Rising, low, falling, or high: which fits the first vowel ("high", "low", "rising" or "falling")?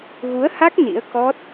rising